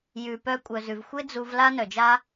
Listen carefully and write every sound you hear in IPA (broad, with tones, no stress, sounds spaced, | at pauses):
j ʉ˨ p œ˧ kʷʼ œ˨ z ʉ˨ v xʷ e˦ d͡z u˧ v l a˦ n œ˨ d͡ʒ a˦